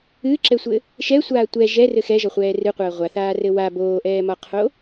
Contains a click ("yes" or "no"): yes